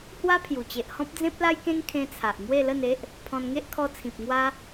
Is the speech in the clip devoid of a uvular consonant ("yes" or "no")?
yes